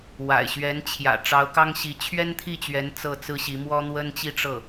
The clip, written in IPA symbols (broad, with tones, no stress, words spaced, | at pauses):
wa̰˨˩ɪ̯ɕɥɛ˧˥n t͡ɕʰjä̰˨˩ ʈ͡ʂɑ˧˥ʊ̯kɑ˥ŋɕi˧˥ t͡ɕʰɥɛ˥nt̪ʰi˥˩t͡ɕɥɛ˧˥n t͡sɤ˥˩t͡sɹ̩˥ɕi˧˥ mwɔ˥n̪wə˥nt͡ɕi˥˧ ʈ͡ʂɤ˥˩